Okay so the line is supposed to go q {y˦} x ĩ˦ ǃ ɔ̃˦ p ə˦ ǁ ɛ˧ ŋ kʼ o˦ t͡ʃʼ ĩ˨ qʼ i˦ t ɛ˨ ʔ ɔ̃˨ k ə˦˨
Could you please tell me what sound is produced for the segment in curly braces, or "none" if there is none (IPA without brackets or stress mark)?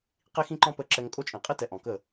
i˦